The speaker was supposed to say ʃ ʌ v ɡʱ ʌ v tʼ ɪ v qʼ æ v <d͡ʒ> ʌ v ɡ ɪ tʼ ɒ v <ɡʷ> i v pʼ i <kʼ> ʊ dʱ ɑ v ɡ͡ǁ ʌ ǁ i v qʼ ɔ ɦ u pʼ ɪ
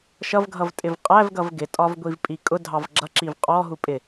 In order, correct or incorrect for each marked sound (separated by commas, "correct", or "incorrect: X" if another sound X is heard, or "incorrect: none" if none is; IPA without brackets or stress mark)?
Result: incorrect: ɡ, correct, correct